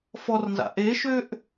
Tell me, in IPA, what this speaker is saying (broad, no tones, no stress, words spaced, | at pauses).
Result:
fɔrnza̰ ʔeʃøʔ